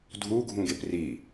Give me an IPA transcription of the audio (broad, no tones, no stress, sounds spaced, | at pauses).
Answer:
dʱ u ɡʱ ũ ɡ e p r i